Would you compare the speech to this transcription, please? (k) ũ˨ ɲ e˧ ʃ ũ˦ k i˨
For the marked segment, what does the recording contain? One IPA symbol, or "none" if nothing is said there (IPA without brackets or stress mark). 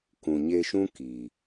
k